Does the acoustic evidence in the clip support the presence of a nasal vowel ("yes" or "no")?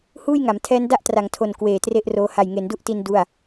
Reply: no